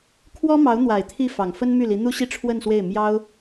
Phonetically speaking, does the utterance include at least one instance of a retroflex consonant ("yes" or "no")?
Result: yes